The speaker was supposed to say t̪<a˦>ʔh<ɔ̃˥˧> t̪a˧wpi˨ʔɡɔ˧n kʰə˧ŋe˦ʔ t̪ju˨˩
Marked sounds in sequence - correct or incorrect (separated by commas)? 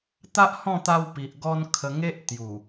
correct, correct